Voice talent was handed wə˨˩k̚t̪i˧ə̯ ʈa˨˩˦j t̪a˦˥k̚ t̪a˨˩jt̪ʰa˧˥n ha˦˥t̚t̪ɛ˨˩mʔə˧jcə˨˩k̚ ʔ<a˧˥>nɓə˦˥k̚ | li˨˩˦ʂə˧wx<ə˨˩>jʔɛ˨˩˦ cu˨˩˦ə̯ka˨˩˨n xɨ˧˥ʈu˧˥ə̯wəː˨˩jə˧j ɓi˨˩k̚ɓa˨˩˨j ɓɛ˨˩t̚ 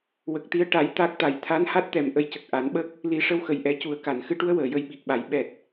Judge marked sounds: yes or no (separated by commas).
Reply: no, yes